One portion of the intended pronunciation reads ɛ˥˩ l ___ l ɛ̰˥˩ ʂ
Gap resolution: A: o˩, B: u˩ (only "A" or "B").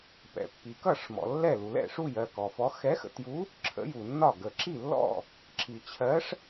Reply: B